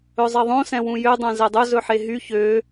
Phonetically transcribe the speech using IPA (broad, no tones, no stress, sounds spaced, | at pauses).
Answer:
ɵ zˤ e ðˤ õ s ɛ̃ w ũ j ø dˤ œ̃ z ɛ dˤ ɵ z ɵ ħ e ɦ y ç ø